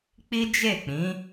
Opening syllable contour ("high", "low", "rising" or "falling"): high